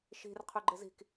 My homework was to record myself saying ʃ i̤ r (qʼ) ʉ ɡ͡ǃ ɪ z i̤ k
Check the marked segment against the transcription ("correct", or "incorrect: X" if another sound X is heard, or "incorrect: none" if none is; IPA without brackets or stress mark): incorrect: qʰ